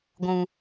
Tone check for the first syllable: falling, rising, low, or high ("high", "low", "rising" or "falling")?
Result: low